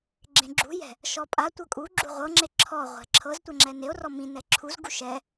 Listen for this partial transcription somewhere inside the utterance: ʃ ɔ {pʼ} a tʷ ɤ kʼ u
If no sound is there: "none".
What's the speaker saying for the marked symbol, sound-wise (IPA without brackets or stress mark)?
pʼ